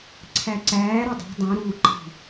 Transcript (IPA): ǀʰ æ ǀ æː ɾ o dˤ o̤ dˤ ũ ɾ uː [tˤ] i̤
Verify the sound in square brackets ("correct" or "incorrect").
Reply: incorrect